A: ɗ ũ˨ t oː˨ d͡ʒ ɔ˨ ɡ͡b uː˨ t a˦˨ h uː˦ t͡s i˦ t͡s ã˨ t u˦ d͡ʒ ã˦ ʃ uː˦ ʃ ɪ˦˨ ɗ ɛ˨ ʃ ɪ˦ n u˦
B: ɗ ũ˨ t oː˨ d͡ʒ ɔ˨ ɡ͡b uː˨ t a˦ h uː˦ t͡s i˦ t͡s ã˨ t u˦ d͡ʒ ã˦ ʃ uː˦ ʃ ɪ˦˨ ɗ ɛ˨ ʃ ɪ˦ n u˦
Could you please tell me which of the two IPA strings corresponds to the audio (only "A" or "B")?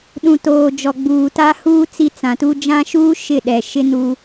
B